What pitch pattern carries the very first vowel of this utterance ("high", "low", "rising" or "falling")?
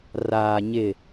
low